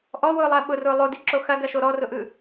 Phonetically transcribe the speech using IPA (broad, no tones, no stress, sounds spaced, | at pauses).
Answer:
ʔ ɔ w ʊː lˠ ɐː ɓ ʊ r ʊː lˠ o d i ǁ o x ɐ ɡ ɐ ʃ o ɾ ɔ r ʊ ʔ ɯ